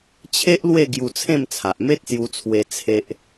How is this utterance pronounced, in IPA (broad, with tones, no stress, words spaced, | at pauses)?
t͡ɕʰe˦ʔlwe˥˧ ɡju˧t͡sʰẽ˥˧mt͡sʰa˨ʔ me˦t̚sju˧t͡sʰwe˧ t͡sʰe˦ʔ